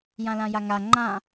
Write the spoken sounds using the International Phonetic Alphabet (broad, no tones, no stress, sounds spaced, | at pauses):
j ã l ã j a ŋ a ŋ͡ǃ ã